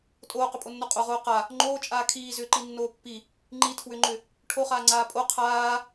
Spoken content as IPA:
tʼ oː q ʏ pʼ o nː o qʼ o ʁ oː q a | ŋ͡ǃ oː t͡ʃʼ aː kʰ iː z ʏː ǃ i nː oː pː i | ŋ͡ǃ i tʰ w ʏ ŋ͡ǃ ʏ | ʈʰ o χ aː ŋ͡ǀ aː pʼ o qʰ aː

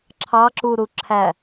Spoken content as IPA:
ǁʰ ɑ ǁ u ɾ u ǁʰ æ

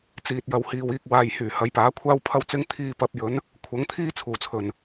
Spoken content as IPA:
t͡s iː˨ t̚ j ɐ˨ w h iː˨ w iː˧ k̚ w aː˨ j h yː˨˩ h ɐ˨˧ j p aː˨˥ kʷʰ aː˥ w pʰ ɐ˥ w t͡s ɪ˥ ŋ t̪ʰ iː˧ p ɐ˨˥ p̚ j ɵ˨˥ n | kʷʰ ɐ˨˥ ŋ t̪ʰ iː˥ t͡sʰ uː˨˩ t͡sʰ ɵ˨˩ n

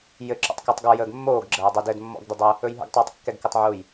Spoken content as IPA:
j ɘ ǁ ɔ̰ tˤ k o tˤ ɡ ɔ j əː ɡ mː oː ɡ ɡ͡ǁ əː dˤ ɘ d ɘ d mː ɔ̰ ɡ d ə dˤ ə | ɵ j ɦ ə̰ ɡ tˤ ʉː tˤ kː ɛ ɡ k ɘ tˤ ʕ u j

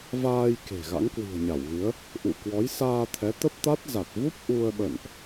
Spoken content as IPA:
v aː˧ j k e̤˨˩ ɣ a̰˧˥ ŋ k w i̤˨˩ ə̯ ɲ a˧˩ w ɣ ɨ˨˦ ə̯ | ʔ ṵ˧˨ k w ɔ˨˦ j s aː˧ t̪ʰ ɛ˨˦ t̪ ə˦˥ p̚ t̪ a˦˥ t̚ z a˨˩ t̚ v u˦˥ p̚ ʔ u˧ ə̯ ɓ ə̰˧˨ n ʔ

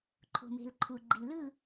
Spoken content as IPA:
ǃʰ o̤˨ m e̤˨ l ǃʰ u˨ ɡ͡ǃ i˨ l ɯ˦˨

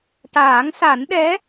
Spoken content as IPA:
ʈ aː˨˩˦ ŋ s a˨˩˦ n ɗ ɛ˧˥

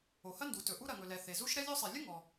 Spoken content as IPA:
o˩ h ɐ˥ n d u˩ t ɵ˩ ʔ u˥ ɾ ɐ˩ ŋ ɵ˩ l ɛ˩ θ e˩ z u˥ ʃ ɾ ɛ˥ lʲ o˥ sˤ ɛ˩ lʲ ə˥ ŋ ɔ˩

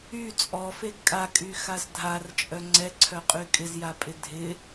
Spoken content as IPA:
y t͡sʼ ɔ f e ɡ kʼ a kʼ y x a z dʱ a r t͡ʃʼ œ ŋ͡ǀ ɛ ǀʰ œ qʼ y kʼ ɪ z j a pʼ ɪ dʱ ɪ

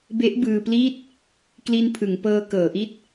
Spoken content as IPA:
b e˦˥ ʔ b ɯː˧ p l iː˥˩ t̚ | k l i˧ n pʰ ɯ˩˦ ŋ p ɤː˧ k ɤː˩˦ ʔ i˦˥ t̚

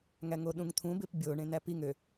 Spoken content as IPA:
ŋ æ ŋ o ɗ ũ ŋ t̪ʰ ũ b e p bʲ o ɳ ẽ n æ p i ŋ ø

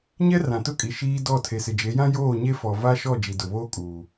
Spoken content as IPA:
ɲ ɛ˦ r ã˨ t ʊ˦˨ kʼ i˨ ʃ iː˦ d ɔ˦˨ tʰ e˨ s ɪ˨ d͡ʒ e˨˦ j ã˦ j oː˦˨ ɲ e˦ f ɔ˨ v a˦ ʃ ɔ˦˨ d͡ʒ i˨ d ʊ˨ β oː˦ kʼ uː˨

